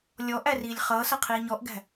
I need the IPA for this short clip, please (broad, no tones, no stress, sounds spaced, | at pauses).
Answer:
lʲ ɔ ʔ æ r iː lʲ χ ʌː s ʌ qʰ iː ɲ ɔ ʔ ɡ æ̤